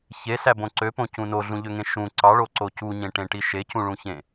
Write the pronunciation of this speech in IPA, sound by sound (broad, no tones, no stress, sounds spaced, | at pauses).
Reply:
ç e s æ b õ ǀ ø p õ c ũ n o ɮ ũ ʎ ø ŋ ẽ ʃ ũ ǀ ɑ ɭ o ǀ o c u ɲ ẽ ʈ ẽ ʈ i ʃ e c ũ ɭ ũ ç ẽ